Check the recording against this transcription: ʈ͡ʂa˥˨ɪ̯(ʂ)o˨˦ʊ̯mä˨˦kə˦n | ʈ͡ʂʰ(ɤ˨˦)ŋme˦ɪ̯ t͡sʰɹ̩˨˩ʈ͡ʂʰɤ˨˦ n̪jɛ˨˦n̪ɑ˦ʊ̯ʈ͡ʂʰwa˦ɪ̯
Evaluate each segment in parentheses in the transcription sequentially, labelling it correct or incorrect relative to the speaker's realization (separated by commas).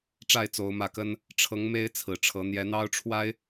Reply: incorrect, correct